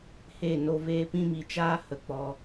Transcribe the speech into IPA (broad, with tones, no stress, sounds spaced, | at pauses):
h e˦˨ n o˧ v eː˧ p ĩ˧ m i˨ t͡ʃ aː˦ h ə˨ k͡p ɔ˧